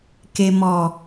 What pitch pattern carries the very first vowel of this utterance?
low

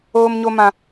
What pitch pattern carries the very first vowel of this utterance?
high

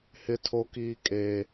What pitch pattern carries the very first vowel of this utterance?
high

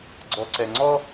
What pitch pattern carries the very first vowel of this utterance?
low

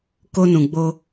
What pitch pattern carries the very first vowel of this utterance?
high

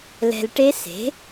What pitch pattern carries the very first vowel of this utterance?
low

